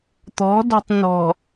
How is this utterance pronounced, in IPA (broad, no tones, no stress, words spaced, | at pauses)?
t̪ɔ̤dɔ̤tˤ nɔ̤